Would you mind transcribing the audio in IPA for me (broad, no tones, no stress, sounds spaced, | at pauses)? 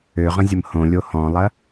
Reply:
ø ʁ ə̃ zʲ ə m h õ lʲ o h ɔ̃ lˠ ɐ